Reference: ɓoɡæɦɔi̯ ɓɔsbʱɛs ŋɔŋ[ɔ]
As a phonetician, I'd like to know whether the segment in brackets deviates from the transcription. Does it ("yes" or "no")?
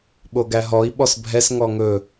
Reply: yes